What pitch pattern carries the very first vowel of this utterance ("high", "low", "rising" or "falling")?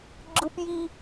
high